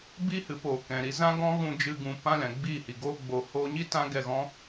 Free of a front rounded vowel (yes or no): yes